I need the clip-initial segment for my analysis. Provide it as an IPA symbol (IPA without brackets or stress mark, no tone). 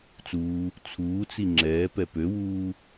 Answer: t͡s